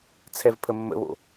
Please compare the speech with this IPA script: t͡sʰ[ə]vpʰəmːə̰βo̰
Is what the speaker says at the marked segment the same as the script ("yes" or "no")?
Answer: no